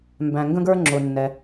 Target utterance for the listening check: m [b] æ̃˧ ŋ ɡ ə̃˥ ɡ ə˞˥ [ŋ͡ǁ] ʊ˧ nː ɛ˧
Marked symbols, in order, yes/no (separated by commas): yes, yes